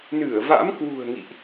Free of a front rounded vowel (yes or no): yes